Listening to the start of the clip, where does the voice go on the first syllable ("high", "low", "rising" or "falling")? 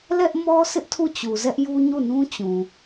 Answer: high